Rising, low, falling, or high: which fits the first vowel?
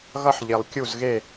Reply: high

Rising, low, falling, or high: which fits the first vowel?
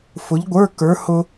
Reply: rising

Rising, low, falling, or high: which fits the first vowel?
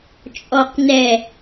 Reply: low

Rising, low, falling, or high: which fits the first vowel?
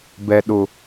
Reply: low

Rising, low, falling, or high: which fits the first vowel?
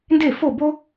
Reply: falling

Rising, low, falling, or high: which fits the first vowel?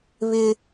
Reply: high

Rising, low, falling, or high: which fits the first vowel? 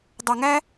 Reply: high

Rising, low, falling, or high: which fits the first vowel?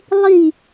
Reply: falling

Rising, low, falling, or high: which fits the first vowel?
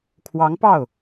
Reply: rising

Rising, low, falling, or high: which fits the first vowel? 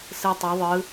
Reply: low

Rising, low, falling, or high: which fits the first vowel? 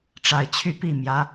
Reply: low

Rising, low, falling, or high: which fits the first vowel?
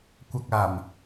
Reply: low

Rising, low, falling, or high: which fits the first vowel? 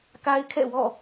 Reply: high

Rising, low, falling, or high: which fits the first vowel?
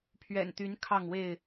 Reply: low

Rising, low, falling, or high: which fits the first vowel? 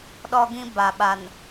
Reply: high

